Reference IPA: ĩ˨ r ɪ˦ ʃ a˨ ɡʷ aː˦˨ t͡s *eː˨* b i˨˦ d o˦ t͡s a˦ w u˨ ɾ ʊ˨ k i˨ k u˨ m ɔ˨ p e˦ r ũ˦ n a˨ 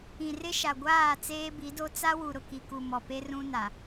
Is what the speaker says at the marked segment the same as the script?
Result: no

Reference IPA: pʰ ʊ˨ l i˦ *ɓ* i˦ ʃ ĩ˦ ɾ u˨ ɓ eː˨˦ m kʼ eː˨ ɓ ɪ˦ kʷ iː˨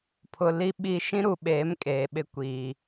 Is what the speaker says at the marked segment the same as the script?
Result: yes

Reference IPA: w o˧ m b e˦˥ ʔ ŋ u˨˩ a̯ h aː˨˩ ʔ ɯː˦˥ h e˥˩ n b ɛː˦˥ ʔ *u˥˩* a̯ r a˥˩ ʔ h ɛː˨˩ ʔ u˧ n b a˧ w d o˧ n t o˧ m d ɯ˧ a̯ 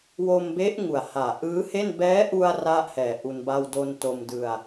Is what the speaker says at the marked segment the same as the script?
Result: no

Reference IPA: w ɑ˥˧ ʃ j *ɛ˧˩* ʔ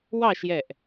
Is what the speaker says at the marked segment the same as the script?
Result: yes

